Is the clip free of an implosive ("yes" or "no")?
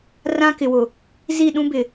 no